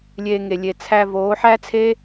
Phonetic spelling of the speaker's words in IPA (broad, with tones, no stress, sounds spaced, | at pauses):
lʲ eː˧ ŋ e˨ lʲ e˨ t͡sʰ æ˧ v oː˨˦ ħ æ˦ t͡sʰ e˦